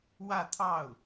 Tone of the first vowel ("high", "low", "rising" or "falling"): falling